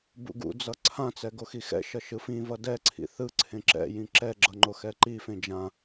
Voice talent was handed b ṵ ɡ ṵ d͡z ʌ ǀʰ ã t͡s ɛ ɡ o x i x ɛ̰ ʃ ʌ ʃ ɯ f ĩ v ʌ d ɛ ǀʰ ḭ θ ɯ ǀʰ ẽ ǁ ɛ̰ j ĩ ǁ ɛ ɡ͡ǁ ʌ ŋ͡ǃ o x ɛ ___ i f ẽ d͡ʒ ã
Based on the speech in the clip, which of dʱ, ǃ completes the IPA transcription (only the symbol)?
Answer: ǃ